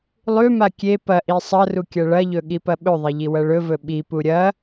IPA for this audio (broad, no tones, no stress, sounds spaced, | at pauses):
lˠ ʉ m a kʲ e p ɐ ʔ i sˤ ɐ r u kʲ ɐ ɭ ɐ ʎ ɵ ɠ i p ɐ ɓ ɵ ðˤ e ʎ i w ɐ ɭ ɵ v ɵ ɓ i p u ɾʲ ɐ